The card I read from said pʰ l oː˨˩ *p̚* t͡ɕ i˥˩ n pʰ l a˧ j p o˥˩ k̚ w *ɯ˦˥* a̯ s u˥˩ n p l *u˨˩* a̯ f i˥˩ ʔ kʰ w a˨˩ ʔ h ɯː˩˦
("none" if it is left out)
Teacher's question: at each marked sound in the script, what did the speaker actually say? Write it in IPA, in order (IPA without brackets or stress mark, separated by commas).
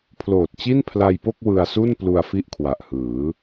t̚, ɯ˧, u˧